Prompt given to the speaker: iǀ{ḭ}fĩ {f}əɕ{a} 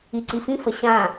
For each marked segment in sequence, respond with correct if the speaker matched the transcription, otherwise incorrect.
incorrect, correct, incorrect

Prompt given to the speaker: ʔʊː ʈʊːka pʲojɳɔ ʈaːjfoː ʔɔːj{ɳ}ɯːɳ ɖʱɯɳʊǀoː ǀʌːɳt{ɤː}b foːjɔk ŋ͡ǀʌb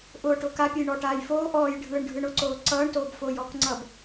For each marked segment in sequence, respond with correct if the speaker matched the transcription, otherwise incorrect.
incorrect, incorrect

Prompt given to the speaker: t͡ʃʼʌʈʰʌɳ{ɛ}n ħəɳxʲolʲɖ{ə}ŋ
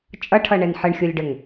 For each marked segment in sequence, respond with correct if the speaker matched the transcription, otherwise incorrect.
correct, correct

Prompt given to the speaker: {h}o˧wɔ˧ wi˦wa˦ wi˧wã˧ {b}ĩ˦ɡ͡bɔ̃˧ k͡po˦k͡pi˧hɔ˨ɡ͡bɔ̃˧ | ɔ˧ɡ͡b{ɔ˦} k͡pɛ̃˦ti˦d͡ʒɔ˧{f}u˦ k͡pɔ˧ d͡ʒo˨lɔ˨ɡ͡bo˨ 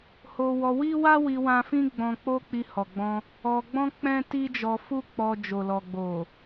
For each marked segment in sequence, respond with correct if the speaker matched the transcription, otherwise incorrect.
correct, incorrect, incorrect, correct

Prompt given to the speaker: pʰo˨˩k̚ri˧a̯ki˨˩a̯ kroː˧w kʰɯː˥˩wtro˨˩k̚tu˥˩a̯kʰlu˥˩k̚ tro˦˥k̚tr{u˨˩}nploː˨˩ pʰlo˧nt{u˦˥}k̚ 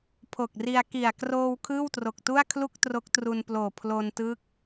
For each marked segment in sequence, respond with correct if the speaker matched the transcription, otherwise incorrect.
incorrect, incorrect

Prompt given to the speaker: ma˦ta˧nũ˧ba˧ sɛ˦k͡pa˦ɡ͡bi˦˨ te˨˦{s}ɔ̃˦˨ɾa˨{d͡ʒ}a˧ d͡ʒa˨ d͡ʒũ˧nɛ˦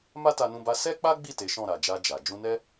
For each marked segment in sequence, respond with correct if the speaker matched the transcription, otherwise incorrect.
incorrect, correct

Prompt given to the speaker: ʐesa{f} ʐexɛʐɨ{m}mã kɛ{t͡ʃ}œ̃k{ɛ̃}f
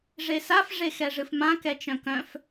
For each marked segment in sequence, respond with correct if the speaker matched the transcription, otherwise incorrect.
correct, incorrect, correct, incorrect

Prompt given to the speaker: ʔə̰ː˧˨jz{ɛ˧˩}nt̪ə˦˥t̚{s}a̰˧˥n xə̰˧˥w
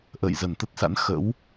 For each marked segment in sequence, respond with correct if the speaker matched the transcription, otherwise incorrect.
incorrect, correct

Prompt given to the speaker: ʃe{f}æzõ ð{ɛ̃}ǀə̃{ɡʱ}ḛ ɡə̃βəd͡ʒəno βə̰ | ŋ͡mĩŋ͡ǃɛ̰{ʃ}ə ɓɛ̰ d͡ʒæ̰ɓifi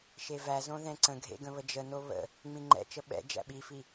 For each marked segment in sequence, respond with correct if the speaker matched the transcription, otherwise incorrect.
incorrect, correct, correct, incorrect

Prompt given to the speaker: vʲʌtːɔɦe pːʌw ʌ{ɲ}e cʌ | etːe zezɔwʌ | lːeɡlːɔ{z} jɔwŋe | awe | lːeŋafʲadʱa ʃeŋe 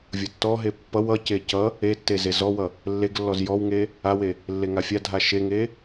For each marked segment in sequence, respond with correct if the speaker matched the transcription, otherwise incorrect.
incorrect, correct

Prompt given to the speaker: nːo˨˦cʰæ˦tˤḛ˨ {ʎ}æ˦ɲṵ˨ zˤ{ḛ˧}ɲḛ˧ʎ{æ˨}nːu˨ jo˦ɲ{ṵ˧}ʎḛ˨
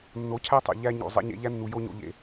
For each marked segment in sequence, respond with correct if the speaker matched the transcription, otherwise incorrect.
correct, correct, incorrect, incorrect

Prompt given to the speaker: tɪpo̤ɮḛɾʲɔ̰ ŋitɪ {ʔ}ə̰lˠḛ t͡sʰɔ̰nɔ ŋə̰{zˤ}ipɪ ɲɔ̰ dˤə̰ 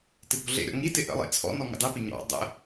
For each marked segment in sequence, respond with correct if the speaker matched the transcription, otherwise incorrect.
correct, incorrect

